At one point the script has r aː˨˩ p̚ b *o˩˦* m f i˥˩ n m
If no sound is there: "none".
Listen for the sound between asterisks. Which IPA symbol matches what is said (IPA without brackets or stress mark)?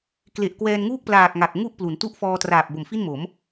o˨˩